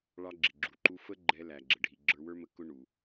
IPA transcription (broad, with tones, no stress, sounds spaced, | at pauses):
ɭ ɑ˧ ɡ͡ǁ ɪ˩ ɡ͡ǁ u˩ ǃ u˧ f ə˥ ɡ͡ǃ ɛ˧ l æ˩ ɡ͡ǁ ə˩ ɖʱ i˩ ɡ͡ǁ ə˞˧ w ə˞˥ m ə˧ k ʊ˥ ɳ u˩